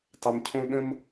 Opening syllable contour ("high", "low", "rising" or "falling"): high